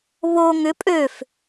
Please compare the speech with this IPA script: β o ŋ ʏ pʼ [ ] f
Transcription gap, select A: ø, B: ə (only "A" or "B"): A